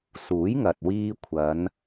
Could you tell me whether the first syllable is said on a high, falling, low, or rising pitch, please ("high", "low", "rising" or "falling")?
rising